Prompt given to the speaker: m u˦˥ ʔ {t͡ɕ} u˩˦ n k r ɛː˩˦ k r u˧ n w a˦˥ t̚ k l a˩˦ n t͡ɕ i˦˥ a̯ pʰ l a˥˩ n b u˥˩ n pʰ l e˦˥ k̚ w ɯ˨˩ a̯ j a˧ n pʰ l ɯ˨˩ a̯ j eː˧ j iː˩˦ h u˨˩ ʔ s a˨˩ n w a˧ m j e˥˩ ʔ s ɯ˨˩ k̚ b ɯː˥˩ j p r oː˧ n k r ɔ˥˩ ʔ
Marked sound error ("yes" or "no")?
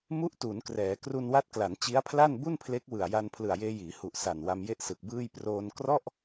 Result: yes